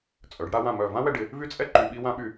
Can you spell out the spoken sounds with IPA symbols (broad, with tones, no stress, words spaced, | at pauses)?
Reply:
t͡sʼœ˩˧ɖɽa˧wã˧˩ mœ˧˩ vã˥wɛ˧ɖɪ˩˧ | vy˥t͡sʼɛ˥ǃy˧ ɓi˧wã˧ɓy˧˩